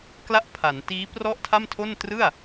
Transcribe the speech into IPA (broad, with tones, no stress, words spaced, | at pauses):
kla˥˩ʔpʰa˩˦n tiː˦˥prɔ˥˩ʔtʰa˥˩mtʰo˥˩n trɯ˥˩a̯